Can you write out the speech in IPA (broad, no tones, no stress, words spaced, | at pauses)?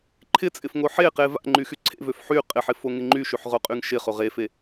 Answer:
ǃʰɪt͡sʼɪfŋo ħeqe va̰ŋ͡ǃyxy ǀʰḛvøf ħy qʼɪħɪfoŋɪ ŋ͡ǃyʃyħʁoqʼyŋ ʃɪχo ʁefe